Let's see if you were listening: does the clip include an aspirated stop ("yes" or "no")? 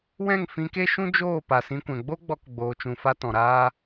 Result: no